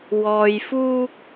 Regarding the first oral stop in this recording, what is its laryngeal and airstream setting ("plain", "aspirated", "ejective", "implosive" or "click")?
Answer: plain